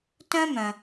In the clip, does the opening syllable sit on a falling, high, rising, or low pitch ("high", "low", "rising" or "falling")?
high